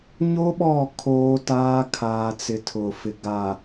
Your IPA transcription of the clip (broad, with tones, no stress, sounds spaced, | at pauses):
ɲ o˦ ɓ ɔ˦˨ kʰ oː˦ t aː˦ kʰ aː˨ t͡s ɪ˨ tʰ ʊ˨ f ɪ˨ ɡ a˨